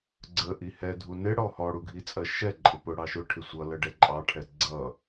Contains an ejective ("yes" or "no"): yes